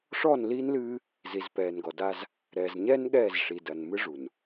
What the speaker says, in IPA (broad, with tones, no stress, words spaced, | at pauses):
ʂɔ˦˨nli˦nlɨː˦ | zi˨zpɛː˨nɡɔ˨da˦z | ɾɛ˨zɲɛ˦n ɠɛː˦˨zʂi˨dɐ˨nmɨ˦ ʐu˨n